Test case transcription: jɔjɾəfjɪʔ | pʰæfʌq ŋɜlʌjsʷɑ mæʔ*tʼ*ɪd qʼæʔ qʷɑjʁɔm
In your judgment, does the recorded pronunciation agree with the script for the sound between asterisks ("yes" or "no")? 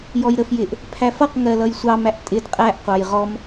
yes